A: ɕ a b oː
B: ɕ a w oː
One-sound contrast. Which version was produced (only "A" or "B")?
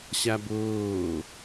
A